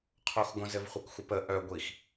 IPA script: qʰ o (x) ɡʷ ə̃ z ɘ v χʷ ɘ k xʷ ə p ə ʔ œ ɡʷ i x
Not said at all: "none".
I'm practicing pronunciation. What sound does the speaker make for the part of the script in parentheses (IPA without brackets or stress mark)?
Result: x